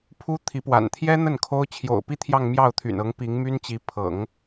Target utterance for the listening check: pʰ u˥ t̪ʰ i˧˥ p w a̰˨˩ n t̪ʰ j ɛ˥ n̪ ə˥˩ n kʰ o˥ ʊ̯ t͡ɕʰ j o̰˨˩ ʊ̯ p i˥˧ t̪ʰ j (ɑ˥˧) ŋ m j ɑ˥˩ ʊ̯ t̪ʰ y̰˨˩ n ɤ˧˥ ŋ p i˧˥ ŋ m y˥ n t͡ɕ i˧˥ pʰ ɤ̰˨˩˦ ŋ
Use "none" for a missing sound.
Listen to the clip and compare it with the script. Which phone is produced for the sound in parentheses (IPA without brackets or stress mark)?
ɑ˥˧